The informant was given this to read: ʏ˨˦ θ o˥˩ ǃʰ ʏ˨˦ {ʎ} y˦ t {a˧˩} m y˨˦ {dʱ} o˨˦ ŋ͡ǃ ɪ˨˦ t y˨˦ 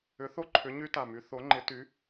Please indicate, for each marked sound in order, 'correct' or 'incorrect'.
incorrect: ɲ, correct, incorrect: θ

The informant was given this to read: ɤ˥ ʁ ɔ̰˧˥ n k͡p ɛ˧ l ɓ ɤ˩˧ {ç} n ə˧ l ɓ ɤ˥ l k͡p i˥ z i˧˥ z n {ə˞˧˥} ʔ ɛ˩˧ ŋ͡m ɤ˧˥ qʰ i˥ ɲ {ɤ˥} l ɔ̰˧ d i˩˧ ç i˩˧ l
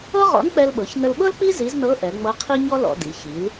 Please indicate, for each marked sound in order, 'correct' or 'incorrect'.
correct, incorrect: ɤ˧˥, incorrect: ɔ˥

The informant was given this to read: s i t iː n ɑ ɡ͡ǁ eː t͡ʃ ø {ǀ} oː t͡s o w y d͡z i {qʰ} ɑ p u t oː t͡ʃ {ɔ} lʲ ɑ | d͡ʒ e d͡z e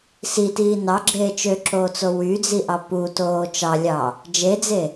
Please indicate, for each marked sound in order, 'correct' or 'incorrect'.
incorrect: ǁ, incorrect: ʔ, incorrect: ɑ

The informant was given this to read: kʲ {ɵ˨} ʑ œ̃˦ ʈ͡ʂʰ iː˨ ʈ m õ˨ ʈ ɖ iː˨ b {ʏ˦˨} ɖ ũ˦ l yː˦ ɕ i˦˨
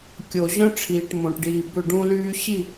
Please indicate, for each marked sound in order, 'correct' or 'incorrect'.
incorrect: o˨, correct

